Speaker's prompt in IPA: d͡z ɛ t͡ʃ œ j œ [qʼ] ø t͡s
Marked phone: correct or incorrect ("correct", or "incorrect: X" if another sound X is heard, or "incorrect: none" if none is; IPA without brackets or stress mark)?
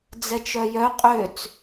correct